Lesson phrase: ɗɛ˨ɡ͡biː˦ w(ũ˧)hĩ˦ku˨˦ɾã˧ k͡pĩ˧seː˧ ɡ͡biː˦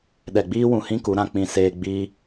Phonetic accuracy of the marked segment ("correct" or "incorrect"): correct